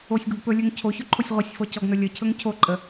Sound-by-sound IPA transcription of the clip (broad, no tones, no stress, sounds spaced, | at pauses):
o sʲ ɡ o ɡ p ɵ lʲ ɵ ŋ cʰ o ç ɵ ǃʰ o sʲ ʁʷ ə sʲ f ɔ c ɔ ɡ n ɵ lʲ ə cʰ ɵ ŋ cʰ o ǃʼ ə